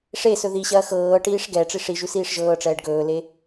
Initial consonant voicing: voiceless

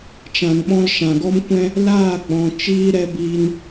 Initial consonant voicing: voiceless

